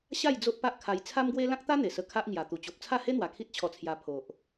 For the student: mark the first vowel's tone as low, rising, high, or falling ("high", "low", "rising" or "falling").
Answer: falling